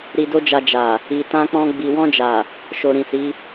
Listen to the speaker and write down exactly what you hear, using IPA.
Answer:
ɾi˧do˦d͡ʒa˧ d͡ʒa˨ | i˨tã˧k͡pɔ̃˧ ɡ͡bi˨wɔ̃˧d͡ʒa˨ | ʃo˨ɾĩ˨si˨˦

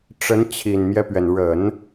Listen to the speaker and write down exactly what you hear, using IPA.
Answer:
ʈ͡ʂə˧˥nt͡ɕʰi˨˩nmjɛ˦pɥɛ˩n ɻə˨˩˦n

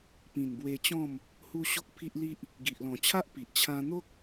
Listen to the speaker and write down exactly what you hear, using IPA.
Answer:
pĩ˨˩nbwe˧t͡ɕɔ̃˥˧m | hu˧ ɕo˦k̚pʰi˦ʔli˦ʔ | ɡi˨ʔlɔ̃˨˩t͡ɕʰa˦ʔ pi˨ʔt͡ɕʰã˦ n̪o˦k̚

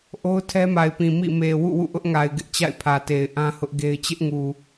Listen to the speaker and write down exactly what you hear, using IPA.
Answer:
ʔo˦ʊ̯tʰɛ˦ma˨ɪ̯pĩ˨ mḭ˦˨ me˨ wṵ˦˨wṵ˦˨ʔʊ˦ʔ ŋa˨ɪ̯ɡɪ˦ʔ t͡ɕa̰˦˨ɪ̯pʰä˨te˨ɪ̯ ʔã˦hʊ˦ʔ ɡe˦ɪ̯ t͡ɕɪ˦ʔŋu˨

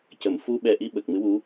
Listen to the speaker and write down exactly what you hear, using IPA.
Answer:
cə˨˩˨m fu˧ɓɛ˨˩ ʔi˧ ɓə˨˩k̚mɨ˧˥wu˧˥

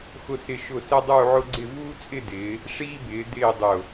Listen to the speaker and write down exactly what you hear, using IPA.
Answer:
xʊ˧sɪ˧˩ʃʊ˧˩ sɛ˥dˤuː˥˧ʕʊ˥ɡ͡ǀɪ˥˧ vuː˥t͡sʼɪ˥˧dɪː˩˧ | ʂiː˥bɪː˩˧ dɪː˥˧dˤʊ˧˩

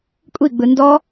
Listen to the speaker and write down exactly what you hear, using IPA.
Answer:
kʷʼiɡ͡bɯ ndɔ

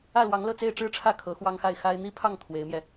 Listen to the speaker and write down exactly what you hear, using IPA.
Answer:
ä˥˩lwɑ˧˥ŋlɤ˥˧ t͡se˥˧ɪ̯ʈ͡ʂɻ̩˥˧ʈ͡ʂʰä˥˩ kʰɤ˧˥xwɑ˥ŋxa˥˩ɪ̯ xa˥ɪ̯ n̪i˥pʰɑ˥˩ŋ t̪ʰwe˧˥ɪ̯mjɛ˧

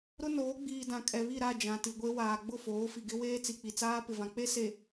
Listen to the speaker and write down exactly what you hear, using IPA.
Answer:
ɾʊ˦noː˨˦ ɡ͡biː˨ dã˨kʼɛ˨βi˦˨ɾa˦˨ d͡ʒã˨ti˨ɡʷe˦ waː˨ɡ͡bʊ˦˨foː˨˦ fi˨ɡɪ˦ weː˦t͡si˨k͡pi˨t͡saː˦ pɪ˨vã˨k͡pe˦ se˨

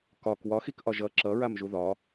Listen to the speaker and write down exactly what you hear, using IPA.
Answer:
kɒk wɒxikʔɒ ʒʌ ǁʌɹam ʒuðɒ

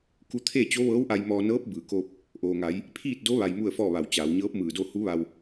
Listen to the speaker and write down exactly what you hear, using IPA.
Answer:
ku˧t̪ʰe˥˨ t͡ɕo˧˥ʋɤː˧˥wʔa˧j mɔː˧ nɤː˧˥p̚ bɯː˩koː˧p̚ | ʔoː˩ŋa˩˧j | pʰiː˥˨t̚do˧˥ ʋa˧jmu˥˨ə̯fɔː˥˨ʋa˧˩w t͡ɕaː˩˧wɲɤː˧˥p̚mɯː˧˩do˥˨ hu˧˥ʋa˧w

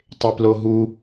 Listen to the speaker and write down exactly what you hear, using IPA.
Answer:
tˤeploɦu

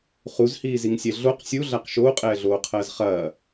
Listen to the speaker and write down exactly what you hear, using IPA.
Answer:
χuzhiːziŋsʲɛ ɮoq sʲuɮaq ʃoːqʼɛːɮoː qʰɐːzχɐː

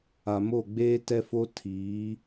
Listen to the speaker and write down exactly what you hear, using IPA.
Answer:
a˨mo˦˨ ɡ͡beː˦tɛ˦fo˦ tʰiː˨˦

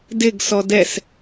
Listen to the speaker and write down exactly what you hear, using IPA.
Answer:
dɪɡ sɔdɛs

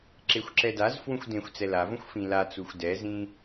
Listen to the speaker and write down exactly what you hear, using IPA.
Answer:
ǁexʷǁɛdazfwũxʷ dẽxʷt͡sɛ lavõxʷ fĩlat͡suxʷ dɛzĩ

